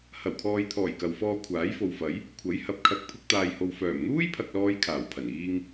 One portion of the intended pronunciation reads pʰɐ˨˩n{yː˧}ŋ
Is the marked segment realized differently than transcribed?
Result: yes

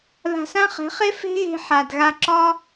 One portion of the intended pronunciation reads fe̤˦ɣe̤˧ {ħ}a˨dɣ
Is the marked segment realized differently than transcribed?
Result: no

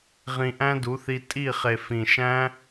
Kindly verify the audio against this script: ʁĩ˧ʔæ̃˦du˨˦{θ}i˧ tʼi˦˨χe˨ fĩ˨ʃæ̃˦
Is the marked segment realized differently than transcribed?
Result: no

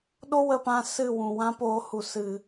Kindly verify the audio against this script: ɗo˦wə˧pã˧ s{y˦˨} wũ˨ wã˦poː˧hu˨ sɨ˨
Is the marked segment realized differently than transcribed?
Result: yes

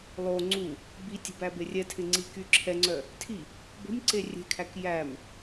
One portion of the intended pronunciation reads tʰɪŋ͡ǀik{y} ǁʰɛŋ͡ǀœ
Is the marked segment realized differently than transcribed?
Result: no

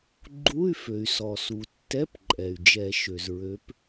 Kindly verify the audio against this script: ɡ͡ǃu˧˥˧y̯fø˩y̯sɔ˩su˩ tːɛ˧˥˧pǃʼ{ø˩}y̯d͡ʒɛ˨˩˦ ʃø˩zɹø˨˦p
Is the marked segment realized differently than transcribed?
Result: yes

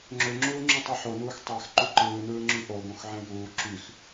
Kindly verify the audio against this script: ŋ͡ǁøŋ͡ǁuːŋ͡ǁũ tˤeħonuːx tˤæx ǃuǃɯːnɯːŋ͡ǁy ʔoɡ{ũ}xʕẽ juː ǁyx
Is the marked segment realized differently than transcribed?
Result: yes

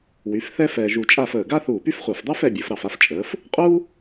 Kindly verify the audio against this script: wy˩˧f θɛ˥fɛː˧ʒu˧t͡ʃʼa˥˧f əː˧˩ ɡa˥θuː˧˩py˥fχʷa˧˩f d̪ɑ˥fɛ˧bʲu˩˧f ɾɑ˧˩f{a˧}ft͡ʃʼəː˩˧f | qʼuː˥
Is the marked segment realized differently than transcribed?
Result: no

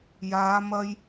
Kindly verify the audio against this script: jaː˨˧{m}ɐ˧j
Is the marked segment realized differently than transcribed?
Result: no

